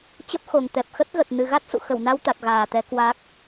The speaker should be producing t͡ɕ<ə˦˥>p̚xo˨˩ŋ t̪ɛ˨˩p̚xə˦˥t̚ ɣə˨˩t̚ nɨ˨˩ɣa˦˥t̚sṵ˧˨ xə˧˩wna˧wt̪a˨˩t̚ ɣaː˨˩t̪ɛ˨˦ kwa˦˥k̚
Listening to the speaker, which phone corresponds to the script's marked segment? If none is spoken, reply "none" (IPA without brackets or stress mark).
ə˦˥